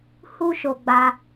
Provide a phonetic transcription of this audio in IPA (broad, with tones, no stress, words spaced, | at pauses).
hu˦ʃo˧ɡ͡ba˧